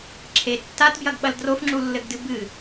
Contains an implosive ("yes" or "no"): yes